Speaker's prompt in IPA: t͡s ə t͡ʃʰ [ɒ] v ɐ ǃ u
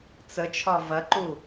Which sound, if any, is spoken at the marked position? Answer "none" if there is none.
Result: ɒ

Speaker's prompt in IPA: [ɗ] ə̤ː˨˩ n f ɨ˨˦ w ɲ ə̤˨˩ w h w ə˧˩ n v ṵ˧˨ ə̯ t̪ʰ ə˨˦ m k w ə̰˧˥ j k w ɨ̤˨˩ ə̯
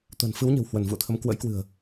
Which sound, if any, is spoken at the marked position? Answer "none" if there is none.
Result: t̪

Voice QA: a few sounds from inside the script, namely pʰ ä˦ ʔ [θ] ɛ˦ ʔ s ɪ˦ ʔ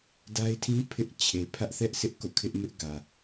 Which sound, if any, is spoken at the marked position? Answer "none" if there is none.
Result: θ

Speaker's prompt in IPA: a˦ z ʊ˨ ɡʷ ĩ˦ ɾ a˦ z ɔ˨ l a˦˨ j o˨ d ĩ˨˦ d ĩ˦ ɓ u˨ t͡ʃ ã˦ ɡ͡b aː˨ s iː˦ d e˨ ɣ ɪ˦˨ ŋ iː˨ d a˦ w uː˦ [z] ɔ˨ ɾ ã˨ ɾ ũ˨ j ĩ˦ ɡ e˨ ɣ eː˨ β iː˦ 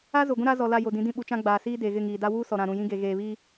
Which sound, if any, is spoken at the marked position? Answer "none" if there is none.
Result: s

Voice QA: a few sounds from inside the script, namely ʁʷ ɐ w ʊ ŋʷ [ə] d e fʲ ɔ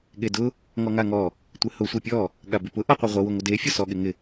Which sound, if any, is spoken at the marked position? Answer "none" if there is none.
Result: ə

